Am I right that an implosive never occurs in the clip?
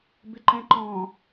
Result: yes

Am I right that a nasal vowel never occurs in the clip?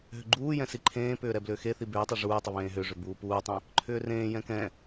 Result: no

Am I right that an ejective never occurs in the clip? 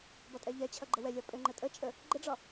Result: no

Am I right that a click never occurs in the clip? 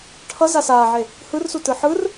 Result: yes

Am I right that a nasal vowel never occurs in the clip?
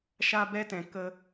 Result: no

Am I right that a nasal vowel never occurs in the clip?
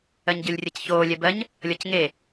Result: yes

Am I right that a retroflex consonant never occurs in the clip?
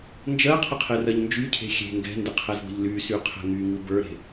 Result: yes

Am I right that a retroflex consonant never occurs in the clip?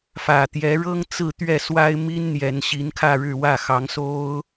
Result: no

